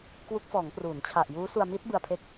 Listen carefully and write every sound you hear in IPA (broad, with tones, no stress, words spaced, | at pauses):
kwu˦˥k̚ fɔː˩˦ŋpruː˩˦nt͡ɕʰa˨˩ʔjuː˦˥ su˧a̯mi˦˥t̚bɯ˧a̯ pʰe˦˥k̚